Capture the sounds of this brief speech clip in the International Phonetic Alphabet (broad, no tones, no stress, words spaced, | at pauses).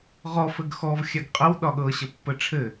ʁɔ fɘɡxɔv xʲaɡqʼəw ɗɒɠɤ ɕəpːəʈ͡ʂʰɘ